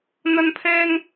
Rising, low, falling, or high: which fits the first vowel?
high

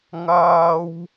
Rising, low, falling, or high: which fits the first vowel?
high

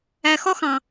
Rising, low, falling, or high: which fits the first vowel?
low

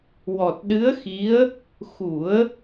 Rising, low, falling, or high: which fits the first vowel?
low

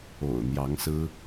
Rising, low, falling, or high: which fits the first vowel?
low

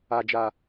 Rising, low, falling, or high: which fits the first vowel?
low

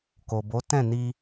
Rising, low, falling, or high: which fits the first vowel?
low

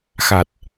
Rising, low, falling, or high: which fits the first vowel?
low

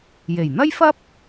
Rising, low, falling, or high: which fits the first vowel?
low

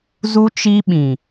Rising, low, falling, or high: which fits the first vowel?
high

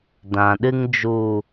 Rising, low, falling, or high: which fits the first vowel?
low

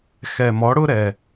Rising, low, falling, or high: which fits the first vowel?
low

